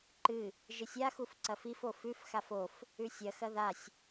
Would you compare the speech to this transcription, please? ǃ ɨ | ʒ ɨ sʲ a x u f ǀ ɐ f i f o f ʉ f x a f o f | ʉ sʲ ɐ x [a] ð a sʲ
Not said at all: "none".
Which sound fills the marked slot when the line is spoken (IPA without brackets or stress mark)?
ɐ